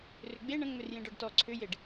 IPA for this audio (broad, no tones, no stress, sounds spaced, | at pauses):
r ʏ ɡ͡b e ɳ ə̃ ŋ͡m ʏ r j ẽ ɖ ɔ ɖ t ɔ ǀʰ ʏ j e ɖ